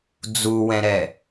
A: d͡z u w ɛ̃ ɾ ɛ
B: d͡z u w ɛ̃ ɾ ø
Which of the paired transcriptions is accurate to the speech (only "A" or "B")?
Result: A